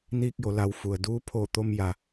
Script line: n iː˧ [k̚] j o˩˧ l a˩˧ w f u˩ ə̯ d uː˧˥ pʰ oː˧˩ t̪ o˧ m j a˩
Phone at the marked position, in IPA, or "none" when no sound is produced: k̚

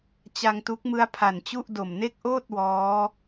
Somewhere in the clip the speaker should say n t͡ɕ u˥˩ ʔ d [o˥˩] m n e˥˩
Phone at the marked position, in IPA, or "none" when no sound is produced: o˨˩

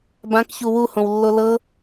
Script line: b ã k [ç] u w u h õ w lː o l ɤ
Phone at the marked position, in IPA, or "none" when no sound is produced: ç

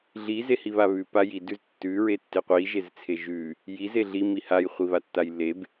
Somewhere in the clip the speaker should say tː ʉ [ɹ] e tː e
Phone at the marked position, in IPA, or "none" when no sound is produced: ɹ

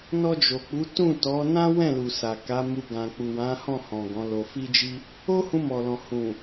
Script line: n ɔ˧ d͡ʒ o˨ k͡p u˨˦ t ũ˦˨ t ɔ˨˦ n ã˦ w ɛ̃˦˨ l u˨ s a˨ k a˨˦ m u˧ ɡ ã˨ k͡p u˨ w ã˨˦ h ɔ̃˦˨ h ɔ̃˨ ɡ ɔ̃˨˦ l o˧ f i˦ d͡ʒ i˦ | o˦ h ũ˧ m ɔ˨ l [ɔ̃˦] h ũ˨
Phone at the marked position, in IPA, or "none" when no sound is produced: ɔ̃˨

